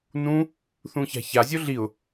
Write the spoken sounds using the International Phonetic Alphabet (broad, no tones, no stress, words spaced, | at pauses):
nũ | θũça̤çazʲo ɮiʊ̯